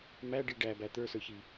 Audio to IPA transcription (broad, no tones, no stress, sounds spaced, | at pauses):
m æ ɖ i ɖ æ b æ t̪ ə˞ s ə˞ ç i